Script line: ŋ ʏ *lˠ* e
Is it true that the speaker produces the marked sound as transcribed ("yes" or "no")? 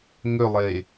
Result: yes